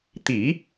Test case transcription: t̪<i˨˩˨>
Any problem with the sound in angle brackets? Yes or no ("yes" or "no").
yes